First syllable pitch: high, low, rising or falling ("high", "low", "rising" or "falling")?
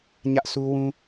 high